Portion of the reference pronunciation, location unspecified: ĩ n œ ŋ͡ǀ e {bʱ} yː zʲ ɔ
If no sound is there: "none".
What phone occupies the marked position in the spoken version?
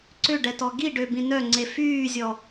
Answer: f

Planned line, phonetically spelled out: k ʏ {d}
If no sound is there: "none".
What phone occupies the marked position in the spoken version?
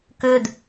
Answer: d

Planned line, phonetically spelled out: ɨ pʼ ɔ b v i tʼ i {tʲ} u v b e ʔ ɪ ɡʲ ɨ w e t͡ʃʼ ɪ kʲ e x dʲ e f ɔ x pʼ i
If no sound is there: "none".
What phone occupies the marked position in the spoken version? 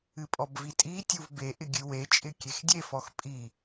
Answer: tʲ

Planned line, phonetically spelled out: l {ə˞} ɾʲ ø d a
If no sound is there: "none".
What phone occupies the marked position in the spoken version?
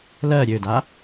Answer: ɜ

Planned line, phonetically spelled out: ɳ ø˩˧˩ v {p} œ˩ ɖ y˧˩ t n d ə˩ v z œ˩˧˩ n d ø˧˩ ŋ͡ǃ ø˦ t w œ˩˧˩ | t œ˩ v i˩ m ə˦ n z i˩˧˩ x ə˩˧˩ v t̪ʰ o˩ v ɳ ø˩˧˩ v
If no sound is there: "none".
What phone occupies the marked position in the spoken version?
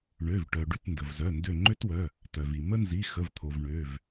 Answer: ʈ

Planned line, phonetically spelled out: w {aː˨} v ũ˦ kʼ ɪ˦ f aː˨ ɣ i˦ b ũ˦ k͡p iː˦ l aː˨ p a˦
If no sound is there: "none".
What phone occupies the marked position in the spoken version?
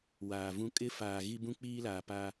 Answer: aː˨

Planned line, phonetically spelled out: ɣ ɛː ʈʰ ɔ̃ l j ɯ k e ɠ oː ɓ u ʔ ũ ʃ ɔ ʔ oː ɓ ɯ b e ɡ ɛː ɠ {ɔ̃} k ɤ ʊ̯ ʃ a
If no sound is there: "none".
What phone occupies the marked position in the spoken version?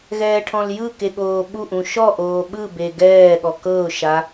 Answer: ɔ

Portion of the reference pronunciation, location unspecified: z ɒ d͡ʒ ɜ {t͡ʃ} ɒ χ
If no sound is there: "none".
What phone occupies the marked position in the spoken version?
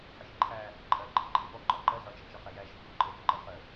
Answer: t͡ʃ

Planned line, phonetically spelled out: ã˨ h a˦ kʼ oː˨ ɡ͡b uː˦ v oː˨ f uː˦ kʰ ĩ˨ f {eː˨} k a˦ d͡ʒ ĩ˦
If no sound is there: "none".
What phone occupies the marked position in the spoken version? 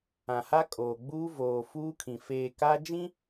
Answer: eː˨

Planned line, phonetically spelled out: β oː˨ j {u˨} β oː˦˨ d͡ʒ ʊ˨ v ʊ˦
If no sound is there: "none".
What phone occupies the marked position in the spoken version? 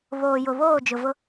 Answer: ʊ˨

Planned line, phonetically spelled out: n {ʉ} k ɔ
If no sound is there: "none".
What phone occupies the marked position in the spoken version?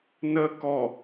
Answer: ə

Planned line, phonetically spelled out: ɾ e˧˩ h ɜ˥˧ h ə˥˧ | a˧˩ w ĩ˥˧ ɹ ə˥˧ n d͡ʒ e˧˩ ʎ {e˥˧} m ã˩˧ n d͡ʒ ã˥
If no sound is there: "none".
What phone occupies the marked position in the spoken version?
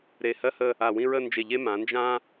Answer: e˥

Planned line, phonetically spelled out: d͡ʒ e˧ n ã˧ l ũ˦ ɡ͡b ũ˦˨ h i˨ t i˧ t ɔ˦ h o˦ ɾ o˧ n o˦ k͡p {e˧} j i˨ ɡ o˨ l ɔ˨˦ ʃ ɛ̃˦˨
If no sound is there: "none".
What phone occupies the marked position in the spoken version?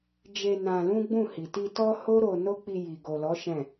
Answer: i˧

